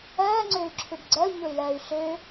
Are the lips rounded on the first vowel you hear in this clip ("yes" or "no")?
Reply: no